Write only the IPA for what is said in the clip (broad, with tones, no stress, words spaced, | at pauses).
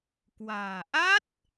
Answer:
kwa̤ː˨˩ ʔa˦˥t̚